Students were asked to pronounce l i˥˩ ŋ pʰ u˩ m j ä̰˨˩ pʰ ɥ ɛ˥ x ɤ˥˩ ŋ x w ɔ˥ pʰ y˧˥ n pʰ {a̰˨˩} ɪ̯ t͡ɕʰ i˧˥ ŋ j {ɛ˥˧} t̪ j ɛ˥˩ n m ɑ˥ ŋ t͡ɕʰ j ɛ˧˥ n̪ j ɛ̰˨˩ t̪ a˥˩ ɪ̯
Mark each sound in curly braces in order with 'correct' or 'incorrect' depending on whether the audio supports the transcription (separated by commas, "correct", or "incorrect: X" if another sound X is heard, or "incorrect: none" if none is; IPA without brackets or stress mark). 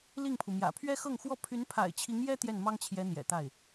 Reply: correct, incorrect: ɛ˥